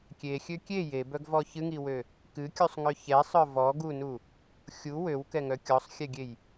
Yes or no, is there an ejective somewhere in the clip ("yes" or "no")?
no